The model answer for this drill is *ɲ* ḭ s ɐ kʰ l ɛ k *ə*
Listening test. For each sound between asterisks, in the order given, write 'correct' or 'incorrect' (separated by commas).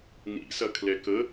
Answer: incorrect, correct